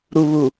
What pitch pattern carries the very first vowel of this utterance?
low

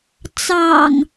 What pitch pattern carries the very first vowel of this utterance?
low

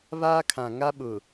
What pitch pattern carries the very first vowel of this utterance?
high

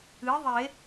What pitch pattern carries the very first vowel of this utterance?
rising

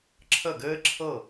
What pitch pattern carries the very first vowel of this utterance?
falling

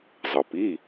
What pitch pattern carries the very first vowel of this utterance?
low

